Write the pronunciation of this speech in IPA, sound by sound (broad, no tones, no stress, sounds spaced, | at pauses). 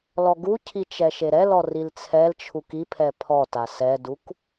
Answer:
l ɔ ɡ u cʰ i t͡ʃ ɛ ʃ e ɾ ɛ l ɔ r i l t͡sʰ ɛ l t͡ʃʰ u k i pʰ ɛ pʰ ɔ t a s ɛ d u k